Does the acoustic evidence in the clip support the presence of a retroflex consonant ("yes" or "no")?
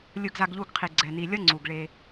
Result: yes